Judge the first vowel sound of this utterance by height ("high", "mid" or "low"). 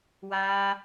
low